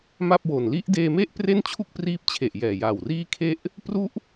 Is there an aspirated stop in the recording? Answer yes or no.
yes